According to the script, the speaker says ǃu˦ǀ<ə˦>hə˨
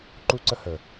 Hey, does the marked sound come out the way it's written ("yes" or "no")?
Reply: yes